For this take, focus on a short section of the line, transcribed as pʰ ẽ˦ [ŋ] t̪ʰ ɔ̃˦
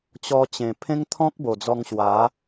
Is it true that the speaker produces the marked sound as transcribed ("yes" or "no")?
yes